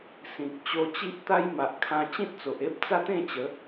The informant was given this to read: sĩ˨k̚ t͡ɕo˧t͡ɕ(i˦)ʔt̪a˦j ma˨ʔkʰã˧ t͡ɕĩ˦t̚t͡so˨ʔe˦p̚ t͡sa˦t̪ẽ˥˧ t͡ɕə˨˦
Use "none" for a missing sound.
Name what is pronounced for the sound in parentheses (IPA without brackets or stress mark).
i˦